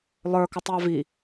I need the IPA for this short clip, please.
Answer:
lˠ ə˞ k ʌ tˤ j ɑ v i

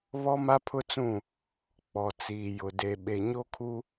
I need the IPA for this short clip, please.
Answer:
β ɔ˦ m a˦ pʰ ʊ˦ t͡s ũ˦˨ | k͡p ɔ˨ t͡s iː˨ j ʊ˨ d e˨ ɓ e˨ ɲ o˦ kʰ u˦

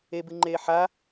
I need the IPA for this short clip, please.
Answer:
e b ɨ ŋ͡ǃ eː ħ a

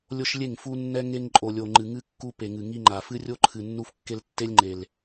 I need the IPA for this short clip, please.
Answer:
lʲ o˦ ʃ lʲ e˦˨ ŋ f u˦ nː ɛ˦ ŋ e˦ ŋ ǃʼ o˨ lʲ o˨ ŋ͡ǃ ɨ˨ ŋ ɨ˦ kː u˦ p e˨ ŋ ɨ˨ ŋ i˦ ŋ͡ǃ a˨ f ɨ˦ rʲ o˦ ǃʰ ɨ˨ nː u˦ f kː e˦ l tː e˦ lʲ ŋ͡ǃ e˨ l

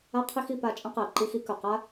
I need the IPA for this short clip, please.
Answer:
a˦ qʰ i˦ x i˧ p a˧ t͡ʃʼ ə̃˦ q ɛ˨ ǃ i˦ x i˦ k ɵ˨ q a˦

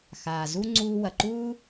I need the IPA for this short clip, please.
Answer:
x aː˩ z u˥ ŋ͡ǀ uː˦ w ɐ˩ ǃ uː˥

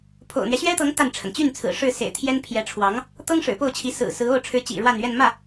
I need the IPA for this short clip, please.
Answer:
pʰ o̰˨˩ ʊ̯ n̪ ɥ ɛ˦ ɕ ɥ ɛ˥ t̪ ɤ˧˥ ŋ t̪ a˥˩ n ʈ͡ʂʰ ə˩ n t͡ɕ y˥˩ n t͡sʰ ɹ̩˨˩ ʂ ɻ̩˥˩ s ḛ˨˩ ɪ̯ t̪ʰ j ɛ˥ n pʰ j ɛ˧˥ ʈ͡ʂʰ w ɑ˧˥ ŋ | t̪ ɤ˥ ŋ ʂ ɻ̩˨˩ p o˥˩ ʊ̯ t͡ɕʰ i˧˥ s ɹ̩˨˩ s ɹ̩˧˥ o˥˩ ʊ̯ ʈ͡ʂʰ ɻ̩˧˥ t͡ɕ ḭ˨˩ ɻ w a˥˧ n ɥ ɛ˥˧ n m ä˥˩

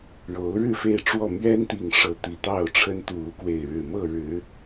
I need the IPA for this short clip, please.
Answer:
ɻ o˨˦ ʊ̯ ɻ ɻ̩˥˨ f e˥˨ ɪ̯ ʈ͡ʂ w ɔ˥˨ m ɥ ɛ˦ n t̪ i˨˩ ŋ ʂ ɤ˨˦ t̪ i˨˩ t̪ ɑ˥˨ ʊ̯ ʈ͡ʂʰ ə˦ n t̪ u˥˨ u˦ k w e˥˨ ɪ̯ ɻ ɻ̩˨˩ m ɤ˥˨ ɻ ɻ̩˨˦

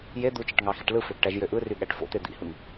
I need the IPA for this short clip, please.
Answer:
j e d̪ u t͡ʃ i ʈ ŋ ɑ x i ʈ l ɯ f ø ɡ ʈ æ ʒ j ø ʔ ɯ r y ɠ æ ʈ f o̰ t̪ e d̪ ḭ h ɯ ŋ

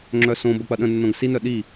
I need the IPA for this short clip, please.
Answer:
ŋ͡ǁ œ s õ b ə k͡p ɐ ɗ ə̃ nː õ ɡ s i n œ ɗ i

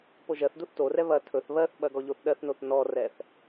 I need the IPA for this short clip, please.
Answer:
p o ʒ ɜ θ d u θ t o r ɛ β ɐ tʰ ɵ θ β ɜ θ ɓ ɐ ɡ ɔ ʎ o θ ɗ ɜ θ n o θ n ɔ r ɛ θ

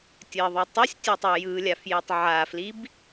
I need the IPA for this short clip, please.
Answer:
tʲ ɜ ðˤ ɯ tˤ ɯ sʲ tʲ ɜ tˤ o j ɯ lʲ a f j i tˤ ʕ a f l i b

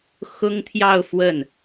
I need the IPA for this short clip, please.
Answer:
x ʊ˥ ŋ t̪ʰ j ɑ˥˧ ʊ̯ f w ə˥˩ n

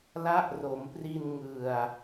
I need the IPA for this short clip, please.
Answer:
l a˦˥ ʔ r o˩˦ m p r i˧ n ŋ ɯ˨˩ a̯

